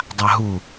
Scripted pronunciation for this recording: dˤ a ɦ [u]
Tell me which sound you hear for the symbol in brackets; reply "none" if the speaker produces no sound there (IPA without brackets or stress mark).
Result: u